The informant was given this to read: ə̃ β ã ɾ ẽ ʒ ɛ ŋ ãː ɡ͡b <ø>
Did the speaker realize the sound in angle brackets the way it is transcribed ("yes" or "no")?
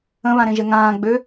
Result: yes